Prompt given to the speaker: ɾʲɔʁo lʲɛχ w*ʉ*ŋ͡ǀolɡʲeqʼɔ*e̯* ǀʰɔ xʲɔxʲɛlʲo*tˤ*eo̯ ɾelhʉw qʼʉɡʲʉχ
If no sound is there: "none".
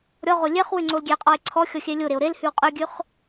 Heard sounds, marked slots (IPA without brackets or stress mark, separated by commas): ʉ, e̯, ɾ